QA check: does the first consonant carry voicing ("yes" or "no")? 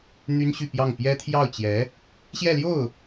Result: yes